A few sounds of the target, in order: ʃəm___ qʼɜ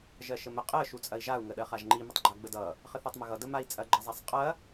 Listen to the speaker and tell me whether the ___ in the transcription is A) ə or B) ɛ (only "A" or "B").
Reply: A